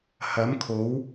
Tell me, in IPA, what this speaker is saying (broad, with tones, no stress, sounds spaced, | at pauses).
h ɐ˨˥ m kʰ o˨˥ w